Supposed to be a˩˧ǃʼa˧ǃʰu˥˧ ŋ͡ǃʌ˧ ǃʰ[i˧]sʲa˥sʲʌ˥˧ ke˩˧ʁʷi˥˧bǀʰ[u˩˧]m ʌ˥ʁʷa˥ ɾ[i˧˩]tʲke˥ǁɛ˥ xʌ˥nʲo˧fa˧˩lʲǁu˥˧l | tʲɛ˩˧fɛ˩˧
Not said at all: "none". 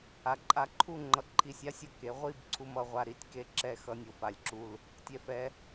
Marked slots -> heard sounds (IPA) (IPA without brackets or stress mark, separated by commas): i˧˩, u˧, i˧˩